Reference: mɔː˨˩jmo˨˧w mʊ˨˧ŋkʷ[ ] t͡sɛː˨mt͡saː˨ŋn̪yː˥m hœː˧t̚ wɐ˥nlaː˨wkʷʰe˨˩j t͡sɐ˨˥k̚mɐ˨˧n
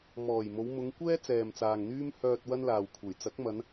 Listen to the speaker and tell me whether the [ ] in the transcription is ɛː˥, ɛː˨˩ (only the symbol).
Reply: ɛː˥